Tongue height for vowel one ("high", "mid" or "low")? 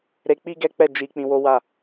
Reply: mid